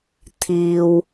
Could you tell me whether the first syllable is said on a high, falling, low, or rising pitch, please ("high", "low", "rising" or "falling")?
low